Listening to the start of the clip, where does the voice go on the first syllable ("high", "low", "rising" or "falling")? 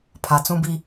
low